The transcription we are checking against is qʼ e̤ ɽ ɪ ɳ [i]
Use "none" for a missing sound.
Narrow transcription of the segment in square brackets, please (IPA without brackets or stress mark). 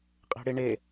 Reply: e